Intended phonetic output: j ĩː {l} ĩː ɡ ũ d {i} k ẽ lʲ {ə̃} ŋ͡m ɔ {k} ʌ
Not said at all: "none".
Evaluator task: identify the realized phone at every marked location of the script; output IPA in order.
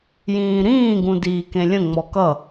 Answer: ɾ, iː, ə̃, k

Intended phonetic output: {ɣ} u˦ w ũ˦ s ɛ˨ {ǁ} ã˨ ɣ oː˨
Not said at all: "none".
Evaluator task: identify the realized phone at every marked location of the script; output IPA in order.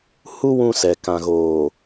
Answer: h, k

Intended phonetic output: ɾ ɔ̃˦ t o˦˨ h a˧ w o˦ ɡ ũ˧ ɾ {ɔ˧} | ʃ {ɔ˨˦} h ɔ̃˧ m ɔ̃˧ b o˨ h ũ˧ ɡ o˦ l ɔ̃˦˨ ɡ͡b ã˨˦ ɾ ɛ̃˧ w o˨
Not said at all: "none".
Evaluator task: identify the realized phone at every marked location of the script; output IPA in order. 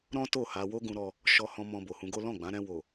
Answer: ɔ˧, ɔ˧

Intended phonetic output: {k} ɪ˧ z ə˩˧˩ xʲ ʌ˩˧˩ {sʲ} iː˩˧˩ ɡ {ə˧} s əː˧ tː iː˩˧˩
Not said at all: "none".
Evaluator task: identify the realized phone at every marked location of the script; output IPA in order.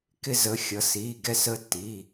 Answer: k, s, ɛ˧

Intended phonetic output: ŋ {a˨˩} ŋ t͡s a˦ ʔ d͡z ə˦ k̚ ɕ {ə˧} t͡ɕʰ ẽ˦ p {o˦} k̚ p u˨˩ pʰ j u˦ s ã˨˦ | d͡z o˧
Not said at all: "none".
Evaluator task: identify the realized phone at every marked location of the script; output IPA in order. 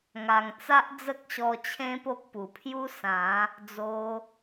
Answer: a˨˩, ɔ˧, o˦

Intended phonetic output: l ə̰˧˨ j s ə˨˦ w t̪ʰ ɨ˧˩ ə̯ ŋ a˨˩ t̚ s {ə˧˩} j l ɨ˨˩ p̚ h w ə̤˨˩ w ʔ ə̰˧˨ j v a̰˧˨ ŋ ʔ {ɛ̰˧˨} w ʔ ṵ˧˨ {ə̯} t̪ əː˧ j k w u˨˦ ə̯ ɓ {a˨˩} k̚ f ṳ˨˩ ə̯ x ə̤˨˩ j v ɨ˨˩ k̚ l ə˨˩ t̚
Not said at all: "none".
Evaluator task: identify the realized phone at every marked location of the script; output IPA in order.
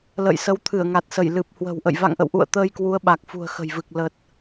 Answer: ə˧˩, ə̰˧˨, ə̯, a˨˩

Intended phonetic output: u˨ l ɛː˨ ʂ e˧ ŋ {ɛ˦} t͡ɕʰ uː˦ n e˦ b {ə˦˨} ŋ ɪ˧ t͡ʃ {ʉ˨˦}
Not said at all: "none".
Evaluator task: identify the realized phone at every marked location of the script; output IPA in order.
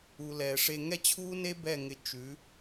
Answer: ɛ˦, ɛ˦˨, ʉ˨˦

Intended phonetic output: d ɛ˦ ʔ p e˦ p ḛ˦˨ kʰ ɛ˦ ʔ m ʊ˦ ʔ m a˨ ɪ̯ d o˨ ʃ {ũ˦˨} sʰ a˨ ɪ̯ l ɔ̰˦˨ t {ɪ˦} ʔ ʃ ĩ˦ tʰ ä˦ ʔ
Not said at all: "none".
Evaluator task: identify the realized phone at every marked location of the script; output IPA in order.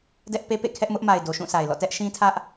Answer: ũ˦˨, ɛ˦

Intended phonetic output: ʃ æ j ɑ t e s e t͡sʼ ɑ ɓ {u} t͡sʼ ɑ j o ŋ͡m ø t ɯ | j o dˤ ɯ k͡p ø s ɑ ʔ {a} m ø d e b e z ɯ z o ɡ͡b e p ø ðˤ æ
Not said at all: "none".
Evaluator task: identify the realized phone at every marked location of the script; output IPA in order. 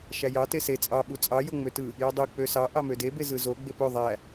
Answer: u, ɑ

